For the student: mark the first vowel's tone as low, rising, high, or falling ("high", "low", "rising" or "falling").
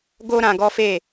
high